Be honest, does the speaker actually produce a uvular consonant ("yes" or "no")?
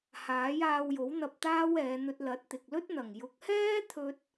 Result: no